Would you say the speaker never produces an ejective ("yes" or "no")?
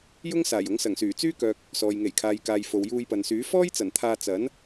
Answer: yes